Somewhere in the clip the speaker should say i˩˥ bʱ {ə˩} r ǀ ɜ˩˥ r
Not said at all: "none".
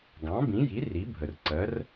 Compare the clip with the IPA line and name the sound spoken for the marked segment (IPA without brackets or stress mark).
ə˩